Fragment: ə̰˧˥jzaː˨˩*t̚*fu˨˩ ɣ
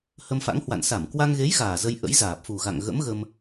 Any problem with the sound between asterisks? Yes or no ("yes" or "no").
yes